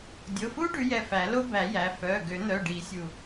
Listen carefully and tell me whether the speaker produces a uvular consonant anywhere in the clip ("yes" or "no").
no